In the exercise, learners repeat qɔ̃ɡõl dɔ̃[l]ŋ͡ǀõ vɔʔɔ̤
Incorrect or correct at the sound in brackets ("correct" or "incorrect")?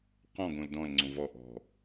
correct